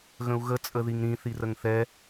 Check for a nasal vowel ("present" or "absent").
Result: present